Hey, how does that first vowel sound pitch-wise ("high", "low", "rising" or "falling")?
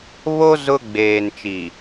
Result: high